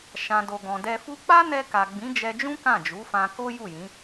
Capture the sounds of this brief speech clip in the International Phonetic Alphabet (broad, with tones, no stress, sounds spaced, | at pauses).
ʃ ã˨ d o˨ ɡ ɔ̃˨ d ɛ˧ f u˦ k͡p a˦ n ɛ˧ k a˨ ɡ͡b ĩ˨˦ d͡ʒ ɛ˧ d͡ʒ ũ˦ k ã˦˨ d͡ʒ u˨˦ f ã˧ k o˦ j u˦˨ j ĩ˨˦